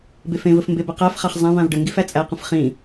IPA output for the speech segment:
b e f ẽ v ə f m b e b ə q æ f χ a χ zˤ æ̃ v ã v ɖ ə ŋ ɡ i f æ t͡sʼ æ q ə̃ f χ ĩ

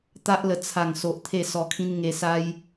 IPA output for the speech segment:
t̪ a˦ ʔ l ə˧ t͡sʰ a˨˩ ŋ s o˨ ʔ t̪ʰ e˥˧ s ɔ˧ kʰ ĩ˦ n ŋ e˧ s a˦ j

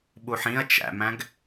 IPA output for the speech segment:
ɓ u ħ ĩ ɐ̯ t͡ʃ æ̰ m æ̃ ɡ

